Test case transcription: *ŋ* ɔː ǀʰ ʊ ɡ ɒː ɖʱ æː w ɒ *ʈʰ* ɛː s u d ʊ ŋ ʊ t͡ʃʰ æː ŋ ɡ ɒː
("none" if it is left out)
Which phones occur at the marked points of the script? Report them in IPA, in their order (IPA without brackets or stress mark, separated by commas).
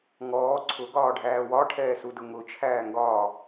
ŋ, ʈʰ